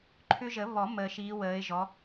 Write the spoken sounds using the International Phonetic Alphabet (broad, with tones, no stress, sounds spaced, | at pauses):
ǃʰ ʏ˦ ʒ ə˨˩˦ β ɔ˨˩˦ m əː˨ ʃ iː˨˦ w əː˨˦ ɪ̯ ʒ ɔ˨˦